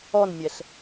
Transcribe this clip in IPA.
ɔ n mʲ ɛ ɬ

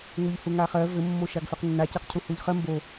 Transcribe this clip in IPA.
ŋ u ʎ h u ŋ a χ ɜ v ɘ mː o ʃ a ɡ f ø q nː a c ɜ q cʰ u h u ʎ χ ɜ m b o

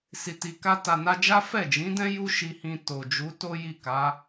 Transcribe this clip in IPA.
s i˨ t i˨ k a˧ t a˨ n a˧ d͡ʒ a˦ f ɛ˦˨ d͡ʒ ĩ˨˦ d ɛ̃˦ j u˦ ʃ i˧ h ĩ˧ t o˨ d͡ʒ u˨˦ t o˦ j i˦˨ k a˨˦

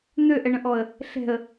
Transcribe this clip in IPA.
n̪ ø ʔ ɛ ɳ ə̃ ʔ ɔ ə̯ | ɬ ɛ̤ ə̯

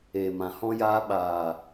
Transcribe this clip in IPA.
eː˨ m ã˨ h ɔ̃˧ j aː˧ ɓ aː˨

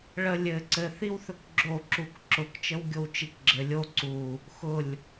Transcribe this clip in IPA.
ɭ ə lʲ ɘ ǀ ɘ θ i w θ ɵ k ɡ͡ǁ o ǁ u k ǁ ʊ k t͡ʃ ə w ɡʲ o w t͡ʃ i k ɡ͡ǁ ɘ lʲ o ǀ u | x ʊ lʲ

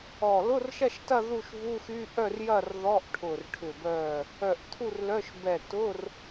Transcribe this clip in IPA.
ɔ˧˩ l ʊ˧˥˧ r ʃ ɐ˥˨ ʃ t ɐ˥˨ ð u˥˨ ʃ v u˧˥˧ x y˧˥˧ ʔ œ˥˨ r j ɐ˥˨ r ð ɔ˧˥˧ ʔ ʈʰ ʊ˧˩ r ʈʰ ʏ˧˩ b œ˧˩ | œ˧˩ ʔ t̪ʰ u˥˨ r l œ˧˥˧ ʃ b ɛ˧˩ t ʊ˧˥˧ r

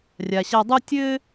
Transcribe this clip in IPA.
rʲ a˨ ɕ a˧ dˤ u˦ tʲ ɘ˦

